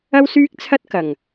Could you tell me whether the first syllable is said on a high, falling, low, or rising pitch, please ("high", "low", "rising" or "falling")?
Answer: high